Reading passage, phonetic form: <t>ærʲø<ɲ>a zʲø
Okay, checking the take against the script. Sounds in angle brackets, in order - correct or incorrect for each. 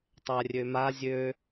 incorrect: tˤ, incorrect: m

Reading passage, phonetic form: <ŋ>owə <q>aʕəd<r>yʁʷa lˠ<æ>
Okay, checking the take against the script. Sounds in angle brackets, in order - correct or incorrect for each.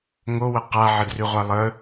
correct, correct, correct, incorrect: ə

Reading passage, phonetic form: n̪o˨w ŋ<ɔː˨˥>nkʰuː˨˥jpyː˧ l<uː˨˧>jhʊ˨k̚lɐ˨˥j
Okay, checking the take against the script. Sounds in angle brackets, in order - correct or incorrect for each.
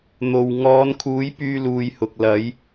incorrect: ɔː˨˧, correct

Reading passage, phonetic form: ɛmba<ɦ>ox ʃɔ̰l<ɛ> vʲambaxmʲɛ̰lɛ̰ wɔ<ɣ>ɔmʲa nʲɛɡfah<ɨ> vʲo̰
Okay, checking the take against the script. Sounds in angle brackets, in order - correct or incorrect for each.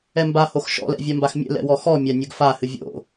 incorrect: h, incorrect: ɛ̰, incorrect: x, correct

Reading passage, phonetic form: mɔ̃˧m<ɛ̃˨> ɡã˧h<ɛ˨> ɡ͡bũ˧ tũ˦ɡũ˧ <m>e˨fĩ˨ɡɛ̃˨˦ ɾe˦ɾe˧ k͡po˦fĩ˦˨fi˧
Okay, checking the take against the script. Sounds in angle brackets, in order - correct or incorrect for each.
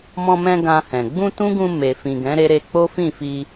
incorrect: ɛ̃˧, incorrect: ɛ̃˨, correct

